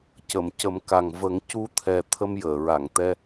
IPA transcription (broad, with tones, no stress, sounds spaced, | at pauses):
c ə˨˩˨ m c ə˨˩˦ m k a˨˩ ŋ v ə˨˩˦ ŋ c u˧˥ t̪ʰ ɛ˨˩ t̪ʰ ə˧ m j əː˨˩˨ ɹ a˨˩˨ ŋ t̪ ɛ˧